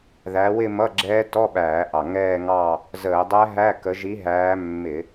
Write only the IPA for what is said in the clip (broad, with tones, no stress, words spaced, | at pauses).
ðæ˨˦wɪ˥˧mʌ˧˥˧ ɡ͡ǁɛː˦˥ tɔ˧˥˧ɓæː˧˩˧ʔɑ˨˩ ŋɛː˥˧ŋɑ˥˧ | zəː˧˩˧ dˤæ˦˥ɦæ˧˥˧kə˨˦ ʒi˨˦ɦæː˨˦ mːɪ˧˩˧